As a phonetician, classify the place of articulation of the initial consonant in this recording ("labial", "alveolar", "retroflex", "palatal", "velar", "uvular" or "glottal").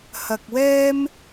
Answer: glottal